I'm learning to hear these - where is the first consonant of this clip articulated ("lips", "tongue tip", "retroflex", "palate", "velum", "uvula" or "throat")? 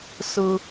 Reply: tongue tip